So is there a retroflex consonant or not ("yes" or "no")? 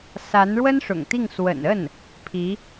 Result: yes